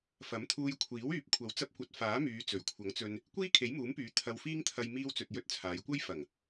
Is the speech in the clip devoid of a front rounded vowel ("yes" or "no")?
no